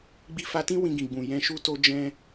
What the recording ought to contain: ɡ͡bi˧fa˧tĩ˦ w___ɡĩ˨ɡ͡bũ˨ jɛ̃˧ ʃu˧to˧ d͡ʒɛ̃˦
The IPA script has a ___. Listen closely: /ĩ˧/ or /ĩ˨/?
ĩ˧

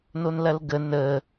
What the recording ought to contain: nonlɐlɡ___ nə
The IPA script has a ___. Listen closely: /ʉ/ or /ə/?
ə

